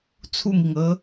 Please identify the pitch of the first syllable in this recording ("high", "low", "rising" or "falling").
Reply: falling